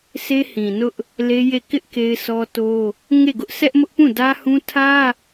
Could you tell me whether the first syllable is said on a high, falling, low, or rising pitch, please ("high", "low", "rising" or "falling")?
high